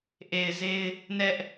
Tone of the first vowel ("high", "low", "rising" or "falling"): low